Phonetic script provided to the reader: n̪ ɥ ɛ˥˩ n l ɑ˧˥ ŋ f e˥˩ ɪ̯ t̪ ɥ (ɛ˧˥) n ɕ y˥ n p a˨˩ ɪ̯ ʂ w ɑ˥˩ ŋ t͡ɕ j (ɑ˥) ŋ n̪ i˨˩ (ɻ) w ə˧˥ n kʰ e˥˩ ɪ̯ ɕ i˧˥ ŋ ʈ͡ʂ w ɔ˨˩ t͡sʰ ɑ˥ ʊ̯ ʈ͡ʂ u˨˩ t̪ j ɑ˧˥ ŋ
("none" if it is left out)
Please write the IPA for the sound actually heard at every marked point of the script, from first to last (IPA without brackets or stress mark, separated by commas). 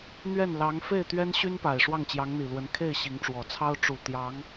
ɛ˥, ɑ˧˥, l